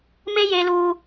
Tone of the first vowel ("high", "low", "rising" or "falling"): high